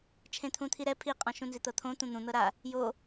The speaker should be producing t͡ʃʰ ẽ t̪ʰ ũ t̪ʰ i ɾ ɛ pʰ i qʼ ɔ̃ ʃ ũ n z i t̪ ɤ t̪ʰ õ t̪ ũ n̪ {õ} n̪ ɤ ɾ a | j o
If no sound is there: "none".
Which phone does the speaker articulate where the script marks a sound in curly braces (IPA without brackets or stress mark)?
ũ